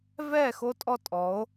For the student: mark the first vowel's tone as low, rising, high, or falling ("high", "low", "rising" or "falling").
falling